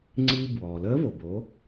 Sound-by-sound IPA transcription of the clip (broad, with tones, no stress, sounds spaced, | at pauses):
ŋ͡ǀ iː˧ b w ɔː˩ l əː˧˥ v o˩ b o˩˧